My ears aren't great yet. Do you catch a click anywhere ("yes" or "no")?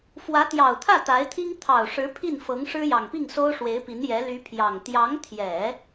no